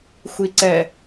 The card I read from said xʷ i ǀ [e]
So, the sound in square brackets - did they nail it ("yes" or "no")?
no